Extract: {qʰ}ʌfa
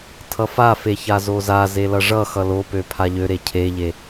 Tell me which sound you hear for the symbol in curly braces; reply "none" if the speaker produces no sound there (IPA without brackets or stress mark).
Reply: tʰ